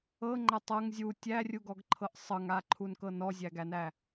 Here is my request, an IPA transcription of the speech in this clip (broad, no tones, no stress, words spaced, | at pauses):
ɤŋ͡ǃætˤ ɤŋ zʲu tʲærʲuɡɔɡǃʰɤʔ sˤɤŋaǃʰunkɤ nɔzʲæɡænæ